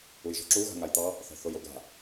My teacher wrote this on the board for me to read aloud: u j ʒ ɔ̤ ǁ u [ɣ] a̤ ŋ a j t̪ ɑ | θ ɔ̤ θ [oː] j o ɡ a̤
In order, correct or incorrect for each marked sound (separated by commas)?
correct, incorrect